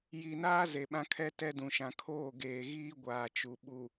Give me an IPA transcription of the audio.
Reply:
j i˨ n aː˦ z e˨ ɓ ã˦ kʰ ɛ˦ t ɛ˦ d ũ˨ ʃ ã˨ kʰ oː˦˨ ɡ eː˨ ɣ iː˦ ɡʷ aː˨ t͡ʃ u˨ ɓ u˨

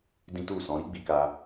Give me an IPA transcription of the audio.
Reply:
d ĩ˦ t u˦˨ s ɔ̃˨˦ ɾ i˦ ɡ͡b i˧ k a˧

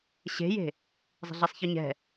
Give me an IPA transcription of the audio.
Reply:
ɕ e̤ j e̤ | zˤ e̤ ɮ e sˤ ç ɯ ɲ ɛ̤

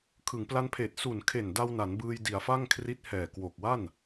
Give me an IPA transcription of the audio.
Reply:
kʰ ɯ˩˦ ŋ p l a˧ n pʰ eː˨˩ t̚ s u˨˩ n kʰ e˨˩ n d a˧ w n a˩˦ n b ɯː˧ j d i˩˦ a̯ f a˥˩ ŋ kʰ r i˦˥ t̚ h ɛː˨˩ k w o˨˩ k̚ w a˥˩ n

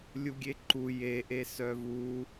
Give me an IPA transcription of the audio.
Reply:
lʲ u ɡʲ e ǃ u j e ʔ e s œ v u

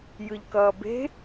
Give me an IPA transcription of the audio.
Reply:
j ɯ ʎ k ʌː b e̤

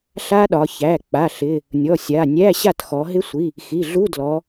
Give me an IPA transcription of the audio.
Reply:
ɬ a˦˥ ɗ ɒ˩˧ ç æ˩˧˩ k͡p a˩˧˩ ɬ ɪ˩˧˩ | nʲ ɔ˩˧˩ sʲ a˩˧˩ nʲ æ˧˥˧ ɕ a˥˩ t x ɔ˩˧ ɦ ɪ˦˥ sʷ i˩˧˩ | x i˩˧˩ ɮ u˧˥˧ d l ɔ˩˧

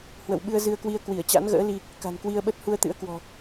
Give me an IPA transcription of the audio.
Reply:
h w ə̰˧˨ w ɓ ɨ˧ ə̯ z ɨ˧ ə̯ k w i˧ ə̯ k w i˧˩ ə̯ t͡ɕ a̰˧˥ n ɣ ə̰ː˧˥ l i˧ | k a̤˨˩ n k w i˧ ə̯ ɓ ə˦˥ t̚ h u˧ ə̯ t̪ ɨ̰˧˥ ə̯ k w ɔ̤˨˩

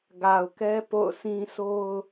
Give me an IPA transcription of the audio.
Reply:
ɡ a˨ ʊ̯ k ɛ˦ p o̰˦˨ ʊ̯ s ĩ˦ sʰ o˦ ʊ̯

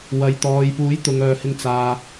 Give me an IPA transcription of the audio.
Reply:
w ɐ˨ j t̪ ɔː˨ j p uː˨˥ j t̪ ʊ˨ ŋ œː˨ h ɪ˧ ŋ t͡s aː˧

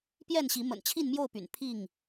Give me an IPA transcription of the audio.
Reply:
p j ɛ˥˨ n ɕ i˨˦ m ə̰˨˩ n t͡ɕʰ i˥˨ n m j o˥˨ ʊ̯ p y̰˨˩ n pʰ i˥˨ ŋ

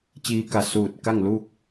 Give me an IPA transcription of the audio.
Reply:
t͡ɕ iː˧ k a˧˩ s uː˧˩ t̚ k a˥˨ ŋ l uː˥˨ k̚

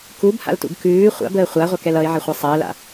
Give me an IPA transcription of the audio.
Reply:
k u b h a̰ l t ṵ ɡ k ʉː χʷ a̰ b əː χʷ a ʁʷ ɑ k ɛ l ʌ ɪ̯ ʕ ə χʷ ɛ sˤ əː l a̰

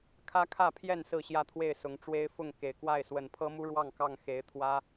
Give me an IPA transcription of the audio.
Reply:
kʰ ä˦ kʰ ä˥˨ pʰ j ɛ˥˨ n s ɹ̩˥˨ ɕ j ä˥˨ t̪ʰ w e˥˨ ɪ̯ s ʊ˨˦ ŋ ʈ͡ʂ w e˦ ɪ̯ f ʊ˥˨ ŋ k e˨˩ ɪ̯ k w a˥˨ ɪ̯ s w ə˨˩ n pʰ ɤ˦ m u˦ ɻ w ɑ˥˨ ŋ k ɑ˥˨ ŋ x e˨˦ ɪ̯ t̪ʰ w ä˦

